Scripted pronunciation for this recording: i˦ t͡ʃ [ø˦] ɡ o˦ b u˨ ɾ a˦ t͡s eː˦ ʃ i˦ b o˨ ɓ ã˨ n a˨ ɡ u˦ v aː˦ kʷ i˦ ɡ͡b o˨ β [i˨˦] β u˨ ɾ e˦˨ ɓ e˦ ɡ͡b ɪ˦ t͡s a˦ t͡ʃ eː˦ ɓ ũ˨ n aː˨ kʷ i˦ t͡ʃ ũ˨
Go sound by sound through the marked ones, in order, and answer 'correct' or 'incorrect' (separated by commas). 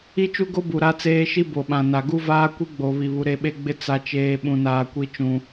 incorrect, incorrect